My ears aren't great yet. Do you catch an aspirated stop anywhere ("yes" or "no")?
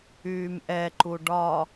no